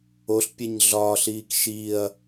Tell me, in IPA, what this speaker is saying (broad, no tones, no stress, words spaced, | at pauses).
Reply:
oɬpʲeɲ ɮɒːɬiːk ʃiɐ̯